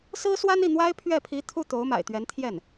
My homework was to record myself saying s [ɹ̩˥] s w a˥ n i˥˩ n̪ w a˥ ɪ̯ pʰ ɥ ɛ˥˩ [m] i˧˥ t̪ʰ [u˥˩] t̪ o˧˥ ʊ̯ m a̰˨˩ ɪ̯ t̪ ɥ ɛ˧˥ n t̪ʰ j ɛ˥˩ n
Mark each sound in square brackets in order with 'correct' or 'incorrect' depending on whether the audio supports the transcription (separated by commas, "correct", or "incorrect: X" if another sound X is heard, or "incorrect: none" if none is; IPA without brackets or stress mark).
correct, incorrect: pʰ, correct